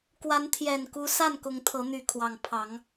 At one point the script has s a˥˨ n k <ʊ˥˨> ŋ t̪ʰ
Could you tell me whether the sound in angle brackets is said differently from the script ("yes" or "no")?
yes